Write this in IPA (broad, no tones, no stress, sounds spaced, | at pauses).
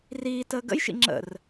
r iː t əː ɡ ə̰ j ʃ ḭ ŋ͡ǁ ə̰ r